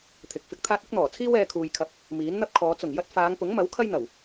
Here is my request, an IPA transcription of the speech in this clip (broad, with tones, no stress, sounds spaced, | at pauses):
t̪ʰ ɪ˨˥ k̚ f ɪ˨˥ k̚ t̪ʰ aː˥ t̚ ɪ˨˥ k̚ n̪ ɔː˨˩ t͡sʰ iː˥ w ɛː˧ kʰ uː˨ j kʰ ɐ˧ p̚ | m iː˨˥ n n̪ ɐ˥ p̚ kʰ ɔː˨˧ t͡s ʊ˨˩ ŋ j ɐ˥ t̚ f aː˨˧ ŋ p ʊ˨˥ ŋ m ɐ˨˥ w kʰ ɐ˥ j n̪ ɐ˨˩ w